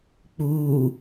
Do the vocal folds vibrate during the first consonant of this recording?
no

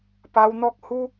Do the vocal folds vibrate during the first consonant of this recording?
no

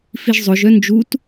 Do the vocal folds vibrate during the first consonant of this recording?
no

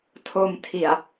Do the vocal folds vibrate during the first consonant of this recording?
no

